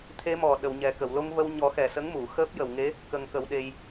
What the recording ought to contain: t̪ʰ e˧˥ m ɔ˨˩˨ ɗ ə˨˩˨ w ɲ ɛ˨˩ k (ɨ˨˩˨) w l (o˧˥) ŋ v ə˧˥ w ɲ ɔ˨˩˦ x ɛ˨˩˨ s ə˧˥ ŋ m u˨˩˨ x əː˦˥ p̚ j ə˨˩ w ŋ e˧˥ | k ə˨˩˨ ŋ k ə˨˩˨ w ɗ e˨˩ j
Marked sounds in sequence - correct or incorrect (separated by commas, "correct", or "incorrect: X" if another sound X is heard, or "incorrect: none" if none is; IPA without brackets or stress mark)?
incorrect: ə˨˩˨, correct